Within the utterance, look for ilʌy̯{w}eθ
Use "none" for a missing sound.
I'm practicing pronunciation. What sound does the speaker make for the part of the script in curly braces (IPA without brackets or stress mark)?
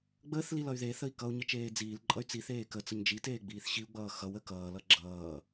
ð